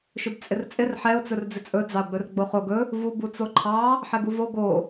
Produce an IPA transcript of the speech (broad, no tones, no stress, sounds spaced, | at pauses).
ʃ ɵ b t͡sʼ ɪ r t͡sʼ ɪ r ħ ɛ ʊ̯ t͡s ɵ r d͡z ɪ t͡sʼ ɵ d͡z ɑ ʊ̯ ɡ͡b ɵ r ɡ͡b o χ o ɡ ɵ | v u b u t͡s o ǃʰ ɑ | ħ ɛ ɡ u v o ɡ o